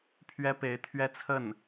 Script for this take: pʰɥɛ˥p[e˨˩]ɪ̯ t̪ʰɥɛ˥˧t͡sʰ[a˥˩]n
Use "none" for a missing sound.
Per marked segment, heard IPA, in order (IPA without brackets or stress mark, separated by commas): e˧˥, ə˥˩